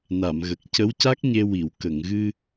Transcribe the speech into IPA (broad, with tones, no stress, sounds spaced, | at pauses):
n a˨˩˨ m ɣ ə˨˩ k̚ c ə˧˥ w c a˦˥ k̚ ɲ e˧ w i˨˩˨ w k ə˨˩˨ ŋ ɣ ɨ˧